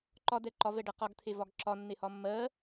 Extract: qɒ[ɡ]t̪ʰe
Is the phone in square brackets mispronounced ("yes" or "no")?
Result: no